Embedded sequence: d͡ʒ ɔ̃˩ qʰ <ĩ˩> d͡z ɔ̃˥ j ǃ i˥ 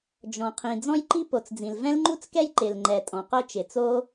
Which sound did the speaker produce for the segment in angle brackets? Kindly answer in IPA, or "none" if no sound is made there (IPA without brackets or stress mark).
ĩ˩